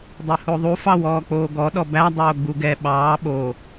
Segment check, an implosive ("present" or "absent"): present